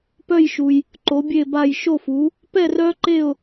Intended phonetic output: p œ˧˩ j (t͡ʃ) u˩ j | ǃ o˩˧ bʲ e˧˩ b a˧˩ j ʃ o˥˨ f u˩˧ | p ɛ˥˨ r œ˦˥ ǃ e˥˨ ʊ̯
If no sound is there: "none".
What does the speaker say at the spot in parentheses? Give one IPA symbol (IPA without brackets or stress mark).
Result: ʃ